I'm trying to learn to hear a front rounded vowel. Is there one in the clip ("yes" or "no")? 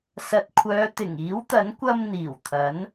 yes